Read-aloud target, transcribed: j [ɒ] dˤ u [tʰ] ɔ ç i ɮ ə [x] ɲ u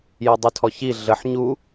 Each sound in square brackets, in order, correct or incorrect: correct, correct, incorrect: ħ

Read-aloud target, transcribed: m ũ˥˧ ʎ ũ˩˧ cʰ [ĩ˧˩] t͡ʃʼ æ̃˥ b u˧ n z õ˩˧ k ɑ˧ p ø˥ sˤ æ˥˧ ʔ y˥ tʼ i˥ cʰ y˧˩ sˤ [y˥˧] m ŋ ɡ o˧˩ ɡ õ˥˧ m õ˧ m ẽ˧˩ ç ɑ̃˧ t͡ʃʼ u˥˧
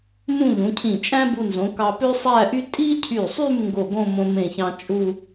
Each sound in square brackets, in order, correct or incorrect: correct, correct

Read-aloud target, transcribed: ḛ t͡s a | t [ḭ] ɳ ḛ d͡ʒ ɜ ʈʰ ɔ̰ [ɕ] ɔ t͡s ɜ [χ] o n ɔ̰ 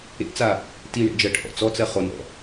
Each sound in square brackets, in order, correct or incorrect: incorrect: i, incorrect: t͡s, correct

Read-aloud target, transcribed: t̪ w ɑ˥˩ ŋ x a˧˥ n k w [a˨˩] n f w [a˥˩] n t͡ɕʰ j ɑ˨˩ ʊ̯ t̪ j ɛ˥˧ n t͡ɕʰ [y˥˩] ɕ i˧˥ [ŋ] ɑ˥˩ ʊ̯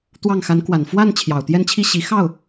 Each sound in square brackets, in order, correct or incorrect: correct, correct, incorrect: i˥˩, incorrect: x

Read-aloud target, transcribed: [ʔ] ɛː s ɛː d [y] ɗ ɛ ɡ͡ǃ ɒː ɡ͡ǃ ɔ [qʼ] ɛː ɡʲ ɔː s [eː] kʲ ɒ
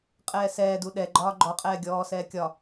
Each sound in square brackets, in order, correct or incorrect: incorrect: qʼ, incorrect: u, correct, incorrect: ɛː

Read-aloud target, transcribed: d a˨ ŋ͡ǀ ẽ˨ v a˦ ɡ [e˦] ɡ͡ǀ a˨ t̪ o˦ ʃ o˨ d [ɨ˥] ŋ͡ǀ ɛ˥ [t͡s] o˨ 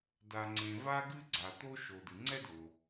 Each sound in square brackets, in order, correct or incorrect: incorrect: ɨ˦, incorrect: ɨ˨, incorrect: d

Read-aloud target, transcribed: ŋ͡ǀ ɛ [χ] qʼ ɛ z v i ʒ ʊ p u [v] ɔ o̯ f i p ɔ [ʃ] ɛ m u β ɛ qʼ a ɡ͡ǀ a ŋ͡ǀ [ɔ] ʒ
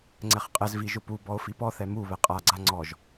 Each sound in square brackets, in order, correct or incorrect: correct, incorrect: b, incorrect: θ, correct

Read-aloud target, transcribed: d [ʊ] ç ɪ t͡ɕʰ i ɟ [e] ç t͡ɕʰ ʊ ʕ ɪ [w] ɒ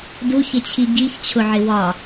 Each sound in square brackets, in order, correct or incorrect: incorrect: u, incorrect: i, correct

